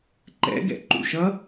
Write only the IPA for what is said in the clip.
ǃɛ̰ɡɛ̰ ǃṵʃʌ

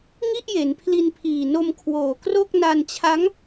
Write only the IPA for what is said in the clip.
ŋi˥˩ʔje˩˦npʰli˧n pʰiː˨˩no˧mkʰwoː˨˩kro˥˩k̚ na˧nt͡ɕʰa˦˥ŋ

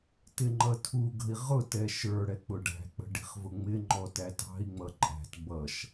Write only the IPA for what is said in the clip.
tɪŋ͡ǃʌtʰuɡə̤i̯ ʁʊtɛ ʃə˞ɽɛ k͡pʊɖæ̤k͡pə̤ ɖi̤χvʊŋ͡mɪŋ͡ǃɔ tætɑ̤i̯ŋ͡mʌ ǃʼæ̤t bʌʃ

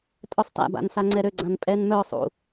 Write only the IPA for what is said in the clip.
tʼœsˤta̰ba̰n saŋ͡ǀɛɾøɡ͡ǀãn pʼɛnmœsˤṵ

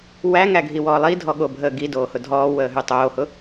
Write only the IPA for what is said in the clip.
wæŋæɡʱiwɔː lˠidʱɔɠobʱəː ɡidoːhʊ dʱɔːwəːɦy tˤoːhʊ

